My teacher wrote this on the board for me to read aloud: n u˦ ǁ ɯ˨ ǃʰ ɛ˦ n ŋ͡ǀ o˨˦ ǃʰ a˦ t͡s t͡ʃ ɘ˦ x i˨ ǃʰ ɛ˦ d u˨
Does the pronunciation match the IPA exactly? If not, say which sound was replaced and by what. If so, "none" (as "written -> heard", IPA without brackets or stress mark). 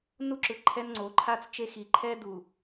ɘ˦ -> e˦